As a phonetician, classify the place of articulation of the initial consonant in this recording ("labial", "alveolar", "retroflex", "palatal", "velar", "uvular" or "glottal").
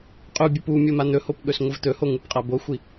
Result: uvular